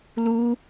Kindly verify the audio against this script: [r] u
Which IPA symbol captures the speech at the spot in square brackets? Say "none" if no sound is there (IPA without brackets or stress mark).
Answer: l